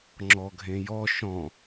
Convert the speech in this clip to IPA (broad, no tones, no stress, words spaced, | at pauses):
ŋ͡ǁɔɡʱẽjɔ ʃɔ̃